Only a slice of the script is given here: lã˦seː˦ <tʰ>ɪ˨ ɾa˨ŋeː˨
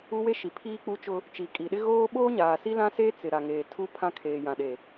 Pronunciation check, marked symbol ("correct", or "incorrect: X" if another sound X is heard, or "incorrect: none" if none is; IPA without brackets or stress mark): incorrect: t͡s